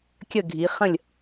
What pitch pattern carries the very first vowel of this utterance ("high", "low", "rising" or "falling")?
falling